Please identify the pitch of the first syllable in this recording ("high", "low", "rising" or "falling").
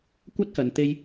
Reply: high